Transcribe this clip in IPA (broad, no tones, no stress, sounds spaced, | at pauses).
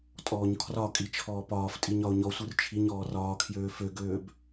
tʼ ɔː ɲ kʰ r ɒ kʼ i t͡ʃʰ ɔː p ɒː f tʼ i ɲ ɒ ʊ̯ ɲ ɔ sʷ ɯ r t͡ʃʰ i ɲ ɔː r ɒː kʰ j øː f ø ɡ øː b